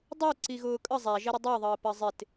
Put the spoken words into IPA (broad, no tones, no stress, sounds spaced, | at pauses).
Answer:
dˤ u ǀ i ɣ ʊː kʼ ə zˤ æ ʒ ɛ ɾ ə dˤ ɜ ðˤ əː p ɜ zˤ ɪ t